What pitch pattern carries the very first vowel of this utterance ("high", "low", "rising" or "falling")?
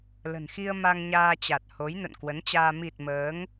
low